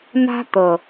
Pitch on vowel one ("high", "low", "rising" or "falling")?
high